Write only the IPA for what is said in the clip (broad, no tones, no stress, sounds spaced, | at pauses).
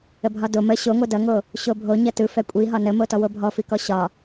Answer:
ə bʱ ɒ d o m ə ɕ o ŋʷ ɛ d ʌ ŋ o | ɕ o bʱ o ɲ ʌ t ɯ f ɛ kʷʼ i ɦ ɒ n ə m o t ɔ w o bʱ ɔ f i k ɔ ɕ ɒ